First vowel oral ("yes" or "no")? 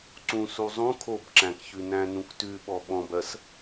no